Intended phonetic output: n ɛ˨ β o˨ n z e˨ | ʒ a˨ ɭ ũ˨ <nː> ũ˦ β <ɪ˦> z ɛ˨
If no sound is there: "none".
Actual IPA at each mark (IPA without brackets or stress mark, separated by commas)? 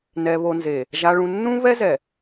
nː, ɛ˦